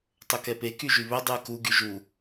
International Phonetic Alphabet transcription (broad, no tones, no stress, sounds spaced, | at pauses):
tˤ ɵ k ɛ p e k y ʒ y β ɵ dˤ ʉ ə̯ k u ɡ y ʒ u